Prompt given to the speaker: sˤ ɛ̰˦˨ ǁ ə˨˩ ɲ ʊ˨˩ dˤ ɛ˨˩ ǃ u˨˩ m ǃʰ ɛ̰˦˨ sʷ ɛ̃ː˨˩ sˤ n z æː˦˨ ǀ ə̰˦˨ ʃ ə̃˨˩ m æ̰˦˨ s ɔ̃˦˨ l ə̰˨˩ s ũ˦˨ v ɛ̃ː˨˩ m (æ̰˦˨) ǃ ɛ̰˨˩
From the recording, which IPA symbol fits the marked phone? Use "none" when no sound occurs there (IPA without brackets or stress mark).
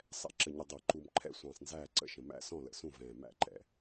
æ̰˦˨